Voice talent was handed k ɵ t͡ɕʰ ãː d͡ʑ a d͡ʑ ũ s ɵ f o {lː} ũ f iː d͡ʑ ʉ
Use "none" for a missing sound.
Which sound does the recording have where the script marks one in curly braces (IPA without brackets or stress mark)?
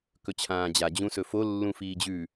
lː